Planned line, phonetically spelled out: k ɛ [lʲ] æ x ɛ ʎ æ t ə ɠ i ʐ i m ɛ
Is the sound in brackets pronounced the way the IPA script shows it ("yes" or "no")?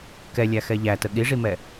yes